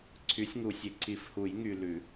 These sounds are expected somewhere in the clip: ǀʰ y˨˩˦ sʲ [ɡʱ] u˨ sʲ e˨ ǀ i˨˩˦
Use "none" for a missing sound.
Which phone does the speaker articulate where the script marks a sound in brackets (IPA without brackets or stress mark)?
ŋ